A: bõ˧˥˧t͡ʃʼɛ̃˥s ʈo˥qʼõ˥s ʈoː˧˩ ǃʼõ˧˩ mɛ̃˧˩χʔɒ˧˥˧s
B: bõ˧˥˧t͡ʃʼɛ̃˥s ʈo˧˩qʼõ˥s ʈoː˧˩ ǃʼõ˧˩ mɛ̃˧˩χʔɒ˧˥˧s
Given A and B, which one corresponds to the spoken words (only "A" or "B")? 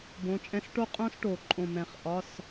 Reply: A